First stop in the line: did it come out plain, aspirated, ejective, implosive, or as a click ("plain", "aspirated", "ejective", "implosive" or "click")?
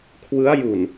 aspirated